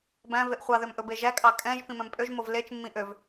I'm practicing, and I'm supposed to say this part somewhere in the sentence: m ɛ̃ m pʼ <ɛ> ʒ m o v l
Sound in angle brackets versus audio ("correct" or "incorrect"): incorrect